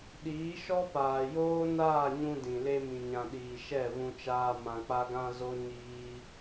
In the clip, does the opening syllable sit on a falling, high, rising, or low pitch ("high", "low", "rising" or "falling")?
rising